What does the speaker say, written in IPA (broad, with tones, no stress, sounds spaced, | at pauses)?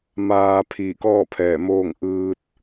m aː˧ pʰ iː˧˩ k ɔː˥˨ pʰ ɛː˧˩ m oː˥˨ ŋ ʔ ɯː˧ t̚